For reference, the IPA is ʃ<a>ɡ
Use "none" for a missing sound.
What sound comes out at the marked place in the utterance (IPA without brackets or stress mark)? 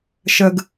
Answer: ə